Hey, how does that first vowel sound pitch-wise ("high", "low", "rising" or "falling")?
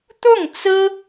falling